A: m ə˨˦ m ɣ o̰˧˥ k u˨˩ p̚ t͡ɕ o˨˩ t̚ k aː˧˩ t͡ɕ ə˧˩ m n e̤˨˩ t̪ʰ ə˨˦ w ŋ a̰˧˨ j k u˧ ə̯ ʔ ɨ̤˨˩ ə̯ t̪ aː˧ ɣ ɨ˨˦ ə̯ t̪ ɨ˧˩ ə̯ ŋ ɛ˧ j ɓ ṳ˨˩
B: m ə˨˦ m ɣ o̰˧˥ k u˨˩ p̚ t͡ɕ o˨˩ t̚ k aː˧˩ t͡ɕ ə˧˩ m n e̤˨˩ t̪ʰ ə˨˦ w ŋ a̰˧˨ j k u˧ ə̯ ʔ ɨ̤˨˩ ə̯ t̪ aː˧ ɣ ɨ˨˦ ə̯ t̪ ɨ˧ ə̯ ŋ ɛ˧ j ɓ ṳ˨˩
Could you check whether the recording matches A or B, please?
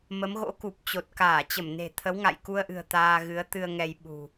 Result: B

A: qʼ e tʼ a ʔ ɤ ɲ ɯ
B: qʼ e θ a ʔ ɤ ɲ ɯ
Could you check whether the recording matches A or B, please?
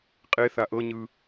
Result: B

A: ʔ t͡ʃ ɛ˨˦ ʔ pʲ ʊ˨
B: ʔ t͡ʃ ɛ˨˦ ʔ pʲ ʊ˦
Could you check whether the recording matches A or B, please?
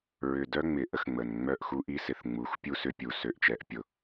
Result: A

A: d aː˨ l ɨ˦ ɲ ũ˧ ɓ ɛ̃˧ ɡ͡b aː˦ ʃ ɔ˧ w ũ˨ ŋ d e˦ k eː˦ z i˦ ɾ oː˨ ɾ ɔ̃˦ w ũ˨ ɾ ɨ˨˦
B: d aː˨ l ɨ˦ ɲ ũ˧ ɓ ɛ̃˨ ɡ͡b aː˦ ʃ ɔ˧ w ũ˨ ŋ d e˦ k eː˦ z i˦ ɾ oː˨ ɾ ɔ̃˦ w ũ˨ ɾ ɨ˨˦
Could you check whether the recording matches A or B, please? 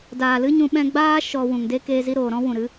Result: A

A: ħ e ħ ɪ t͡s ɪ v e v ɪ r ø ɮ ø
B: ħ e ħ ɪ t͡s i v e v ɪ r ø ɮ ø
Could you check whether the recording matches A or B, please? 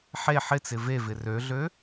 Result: A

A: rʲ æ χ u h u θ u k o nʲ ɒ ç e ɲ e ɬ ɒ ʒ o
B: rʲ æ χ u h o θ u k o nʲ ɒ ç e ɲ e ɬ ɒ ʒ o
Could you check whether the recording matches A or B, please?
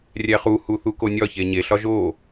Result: A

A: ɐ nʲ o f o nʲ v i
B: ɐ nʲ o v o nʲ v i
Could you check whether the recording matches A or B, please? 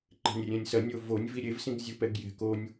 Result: B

